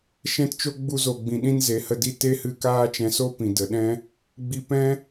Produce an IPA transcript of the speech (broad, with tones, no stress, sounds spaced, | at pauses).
ʃ ɛ̃˧ t t͡ʃ o˦ ɡ͡b u˧ z o˨ ɡ͡b ĩ˨ ɗ ĩ˦ n z e˨˦ h ə˧ d i˦ t e˦ h ɨ˧ k aː˦ t͡ʃ ɛ̃˧ s o˦ p ĩ˨ d ə˨ ɗ ɛ̃˦ | ɡ͡b i˧ p ɛ̃˦